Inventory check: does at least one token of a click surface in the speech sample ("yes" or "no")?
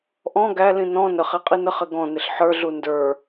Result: no